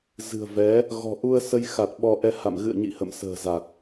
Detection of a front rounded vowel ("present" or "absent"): absent